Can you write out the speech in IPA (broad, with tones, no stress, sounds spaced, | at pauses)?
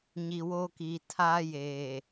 ɲ i˨ w o˦ k iː˨ tʰ aː˦ j eː˨